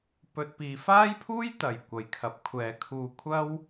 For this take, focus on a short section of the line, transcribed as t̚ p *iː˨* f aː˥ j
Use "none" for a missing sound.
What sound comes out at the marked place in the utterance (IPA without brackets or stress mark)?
iː˨